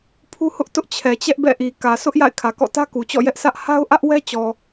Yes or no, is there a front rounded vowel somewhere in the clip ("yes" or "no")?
no